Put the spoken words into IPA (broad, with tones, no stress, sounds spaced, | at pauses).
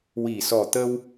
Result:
w i˨˩ s ɔ˨˩ t̪ ə˧ w